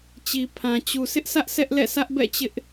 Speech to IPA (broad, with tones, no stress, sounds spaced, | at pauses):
t͡ɕ i˨ pʰ ã˨ t͡ɕ u˨ s ɪ˦ ʔ sʰ ä˦ ʔ sʰ ɛ˦ ʔ l ɛ̰˦˨ sʰ ä˦ ʔ b ɛ̰˦˨ t͡ɕ ɪ˦ ʔ